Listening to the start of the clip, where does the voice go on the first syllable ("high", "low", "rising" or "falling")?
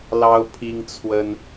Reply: high